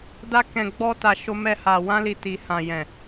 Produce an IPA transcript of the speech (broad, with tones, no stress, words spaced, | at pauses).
da˧kɛ̃˨ ɡ͡bɔ˧ta˨ ʃo˧mɛ˧ha˨ wã˧li˨ ti˨ hã˨jɛ̃˨